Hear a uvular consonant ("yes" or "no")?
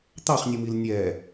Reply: yes